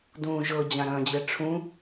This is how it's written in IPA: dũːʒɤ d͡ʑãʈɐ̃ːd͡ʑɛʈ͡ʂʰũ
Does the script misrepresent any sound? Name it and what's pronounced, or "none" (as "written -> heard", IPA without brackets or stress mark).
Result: ʈ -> ɾ